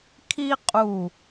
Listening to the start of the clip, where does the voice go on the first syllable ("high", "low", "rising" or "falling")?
high